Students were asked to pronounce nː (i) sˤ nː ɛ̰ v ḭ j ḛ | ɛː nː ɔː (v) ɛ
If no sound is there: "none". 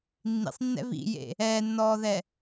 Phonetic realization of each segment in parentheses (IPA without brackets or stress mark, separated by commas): ḭ, ð